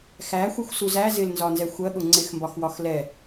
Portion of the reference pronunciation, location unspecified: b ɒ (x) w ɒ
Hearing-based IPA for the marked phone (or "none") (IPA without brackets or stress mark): x